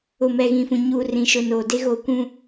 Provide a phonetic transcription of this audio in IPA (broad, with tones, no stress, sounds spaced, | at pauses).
ʊ˨ m ɛ˨ ɣ ĩ˨ f ũ˨ ɲ uː˨ r ĩ˨ ʃ ʊ˨ n oː˨ d e˦ ɣ o˦˨ kʷ ũ˦